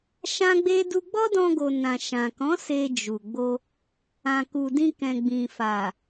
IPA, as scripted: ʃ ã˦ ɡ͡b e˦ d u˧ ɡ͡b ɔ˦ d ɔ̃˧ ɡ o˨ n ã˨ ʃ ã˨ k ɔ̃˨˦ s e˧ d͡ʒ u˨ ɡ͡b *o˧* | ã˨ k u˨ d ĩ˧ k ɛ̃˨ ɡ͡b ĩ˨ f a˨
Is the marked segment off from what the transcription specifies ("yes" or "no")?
no